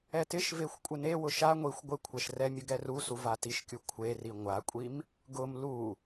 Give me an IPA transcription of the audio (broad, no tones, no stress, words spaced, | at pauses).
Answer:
ɛtɪʃvexʷ kʷʼɪnewʊ ʃa ŋʷixʷ ɡʷɪkʷʰɛʃ rɛ mʲʊɡɛrusu vatiʃkʲu kʷʰeri ŋʷakʷʼim | ɡʊm lu